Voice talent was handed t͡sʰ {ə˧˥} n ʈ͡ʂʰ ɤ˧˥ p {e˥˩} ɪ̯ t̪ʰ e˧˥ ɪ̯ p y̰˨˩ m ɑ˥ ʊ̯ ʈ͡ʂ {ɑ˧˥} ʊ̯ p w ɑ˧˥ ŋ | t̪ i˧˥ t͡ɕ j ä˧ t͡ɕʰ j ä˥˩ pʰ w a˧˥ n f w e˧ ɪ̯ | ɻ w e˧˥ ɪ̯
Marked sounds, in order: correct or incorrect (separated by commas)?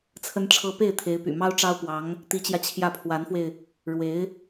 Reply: correct, correct, incorrect